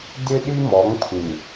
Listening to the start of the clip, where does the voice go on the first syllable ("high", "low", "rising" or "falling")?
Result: high